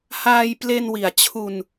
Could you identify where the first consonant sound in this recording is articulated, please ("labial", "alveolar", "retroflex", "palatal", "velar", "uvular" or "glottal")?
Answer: glottal